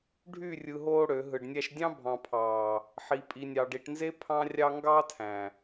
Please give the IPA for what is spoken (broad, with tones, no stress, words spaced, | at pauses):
ɖʱy˦˨rʲɯ˨ ɦoː˦ɽø˨˦ ɦɯ˨ɖnʲæ˦ʃ dʲɑ̃˦bʱɑ̃˨pʰɑː˨ | ħi˨pʼi˨nʲɑ˨ɖ i˨ʈnze˦ pʰɑ̃˦rʲɑ˦ ŋɡɑ˦ tʰæ̃˨